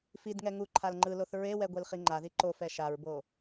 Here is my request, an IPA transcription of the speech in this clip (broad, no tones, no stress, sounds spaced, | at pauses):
f i d ŋ ɛ ŋ u ǃʰ a l ŋ͡ǃ ɯ l o θ ɹ e w ɛ ɡʷ e l χ i ŋ͡ǃ a ð i ǃ o f ɛ ʃ a ɹ b o